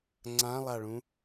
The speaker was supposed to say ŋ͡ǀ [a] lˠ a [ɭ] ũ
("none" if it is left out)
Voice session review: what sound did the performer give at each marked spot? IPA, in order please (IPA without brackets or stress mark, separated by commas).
ã, ɭ